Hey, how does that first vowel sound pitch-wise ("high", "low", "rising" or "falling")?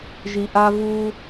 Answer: low